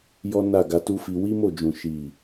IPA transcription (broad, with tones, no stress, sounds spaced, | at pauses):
j ɔ˦ n a˦˨ ɡ a˧ t u˦ f i˧ w i˦ m o˦˨ d͡ʒ ũ˨ ʃ i˨